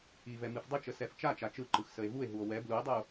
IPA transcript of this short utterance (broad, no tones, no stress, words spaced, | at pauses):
ivɛ mɨfdˤɨt͡ʃə sɛft͡ʃat͡ʃa t͡ʃɯǃɯx səe̯vue̯ɦuo̯ wɛ blue̯dˤɯo̯